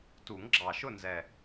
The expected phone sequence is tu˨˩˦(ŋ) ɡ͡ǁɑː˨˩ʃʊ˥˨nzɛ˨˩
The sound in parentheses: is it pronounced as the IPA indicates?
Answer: yes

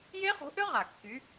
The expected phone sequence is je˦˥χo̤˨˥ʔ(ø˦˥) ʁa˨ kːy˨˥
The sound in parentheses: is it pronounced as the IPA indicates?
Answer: yes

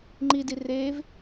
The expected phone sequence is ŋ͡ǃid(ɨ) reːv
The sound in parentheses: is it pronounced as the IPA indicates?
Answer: no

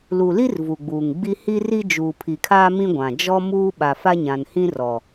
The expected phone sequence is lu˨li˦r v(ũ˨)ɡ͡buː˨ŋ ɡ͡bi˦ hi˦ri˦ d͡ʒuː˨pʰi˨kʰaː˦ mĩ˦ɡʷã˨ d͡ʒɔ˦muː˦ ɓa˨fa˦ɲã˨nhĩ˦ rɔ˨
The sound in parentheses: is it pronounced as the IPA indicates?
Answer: no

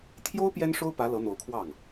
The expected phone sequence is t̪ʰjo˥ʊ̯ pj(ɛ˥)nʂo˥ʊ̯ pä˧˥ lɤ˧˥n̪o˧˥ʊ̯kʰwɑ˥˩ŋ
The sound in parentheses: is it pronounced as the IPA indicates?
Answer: yes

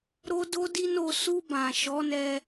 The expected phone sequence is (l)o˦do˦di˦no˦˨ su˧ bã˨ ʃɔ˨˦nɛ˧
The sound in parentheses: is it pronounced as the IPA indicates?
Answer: no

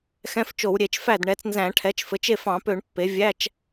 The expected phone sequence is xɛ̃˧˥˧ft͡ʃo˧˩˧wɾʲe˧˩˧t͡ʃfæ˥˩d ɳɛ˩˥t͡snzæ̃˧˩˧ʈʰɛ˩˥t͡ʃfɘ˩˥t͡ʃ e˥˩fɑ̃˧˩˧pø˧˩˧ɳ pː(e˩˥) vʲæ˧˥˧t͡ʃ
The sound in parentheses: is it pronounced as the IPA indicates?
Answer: yes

